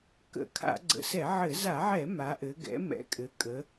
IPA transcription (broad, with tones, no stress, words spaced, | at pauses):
kə̰˧˩˧kʰa̰˧˩˧ ɡ͡ǀə̰˩˧sɛ˧˩˧ʕɘ˧˩˧ za˧˩˧ʕɛ˧˩˧ ma˩˧ʔɘ˩˧ ɡɛ̰˩˧mɛ̰˩˧ kʼɘ˩˧ kʼə˩˧